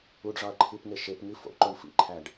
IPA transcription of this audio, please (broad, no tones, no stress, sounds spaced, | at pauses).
u ɖ ʐ ɒ ɐ̯ ǃʰ i p ŋ e ʃ e p ŋ i f o̰ ǃ o ɳ f ḭ ǃʰ æ ɖ